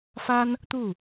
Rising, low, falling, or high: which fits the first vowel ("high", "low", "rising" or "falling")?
high